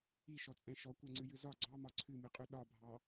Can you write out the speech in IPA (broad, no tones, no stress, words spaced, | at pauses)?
iʃɔt͡sʼɛ̃ ʃɔkʷɛŋ͡ǀɨjɨ zɒ ɡ͡ǀɑmɒ ǀʰɨmɨqʼʉ ɗɒbʱɑ